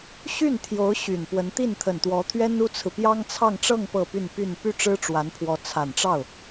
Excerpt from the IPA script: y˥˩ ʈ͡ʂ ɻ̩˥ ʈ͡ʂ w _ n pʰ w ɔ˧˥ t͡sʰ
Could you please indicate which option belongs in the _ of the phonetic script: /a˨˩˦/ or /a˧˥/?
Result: a˧˥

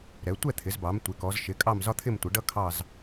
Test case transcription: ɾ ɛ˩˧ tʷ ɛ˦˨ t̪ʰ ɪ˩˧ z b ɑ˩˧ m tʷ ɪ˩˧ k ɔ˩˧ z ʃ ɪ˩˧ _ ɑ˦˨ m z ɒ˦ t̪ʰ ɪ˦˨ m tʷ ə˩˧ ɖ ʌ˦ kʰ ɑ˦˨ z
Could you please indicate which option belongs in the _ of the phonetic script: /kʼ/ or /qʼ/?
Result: kʼ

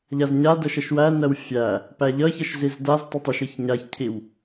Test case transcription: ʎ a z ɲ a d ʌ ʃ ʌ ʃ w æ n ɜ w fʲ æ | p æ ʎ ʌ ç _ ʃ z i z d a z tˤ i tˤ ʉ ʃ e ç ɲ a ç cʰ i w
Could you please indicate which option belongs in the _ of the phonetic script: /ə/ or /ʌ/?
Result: ʌ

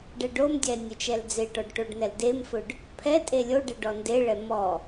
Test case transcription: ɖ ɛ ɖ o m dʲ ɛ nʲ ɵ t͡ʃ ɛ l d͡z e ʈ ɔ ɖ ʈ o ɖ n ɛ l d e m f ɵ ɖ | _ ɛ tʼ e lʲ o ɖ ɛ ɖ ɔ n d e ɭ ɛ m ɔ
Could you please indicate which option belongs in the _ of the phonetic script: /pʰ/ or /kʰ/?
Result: pʰ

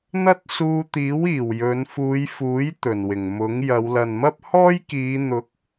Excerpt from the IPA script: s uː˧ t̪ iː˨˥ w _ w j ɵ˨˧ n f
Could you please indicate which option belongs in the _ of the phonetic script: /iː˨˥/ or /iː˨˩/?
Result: iː˨˩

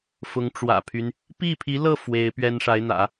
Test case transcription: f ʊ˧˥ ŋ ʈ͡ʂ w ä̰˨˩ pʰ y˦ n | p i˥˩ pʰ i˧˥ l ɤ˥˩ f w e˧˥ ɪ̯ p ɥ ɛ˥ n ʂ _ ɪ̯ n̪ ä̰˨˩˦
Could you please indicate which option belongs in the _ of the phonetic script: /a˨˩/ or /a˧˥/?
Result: a˧˥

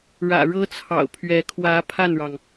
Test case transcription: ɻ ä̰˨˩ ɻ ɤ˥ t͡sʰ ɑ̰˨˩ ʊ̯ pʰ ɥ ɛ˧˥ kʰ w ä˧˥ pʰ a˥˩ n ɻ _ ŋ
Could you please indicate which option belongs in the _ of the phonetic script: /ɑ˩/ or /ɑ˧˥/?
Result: ɑ˩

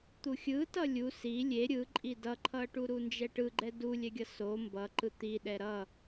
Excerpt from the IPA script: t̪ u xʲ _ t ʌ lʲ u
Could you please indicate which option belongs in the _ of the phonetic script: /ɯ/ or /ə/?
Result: ɯ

